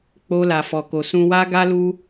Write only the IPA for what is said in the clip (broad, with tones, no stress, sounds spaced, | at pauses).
k͡p o˧ l a˨ f ɔ˨ k o˨ s ũ˧ w a˦ ɡ a˦ l u˧